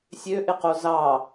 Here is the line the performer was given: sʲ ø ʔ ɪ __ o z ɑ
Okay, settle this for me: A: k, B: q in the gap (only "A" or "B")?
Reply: B